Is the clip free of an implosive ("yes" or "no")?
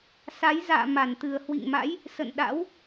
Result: no